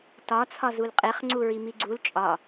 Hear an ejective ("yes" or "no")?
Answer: yes